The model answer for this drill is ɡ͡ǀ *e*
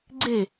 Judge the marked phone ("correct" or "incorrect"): correct